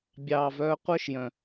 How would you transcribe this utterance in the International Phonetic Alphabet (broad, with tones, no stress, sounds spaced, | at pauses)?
bʲ ɑː˨ v œː˧ qʷ œ˦ ʃ j œ̃˨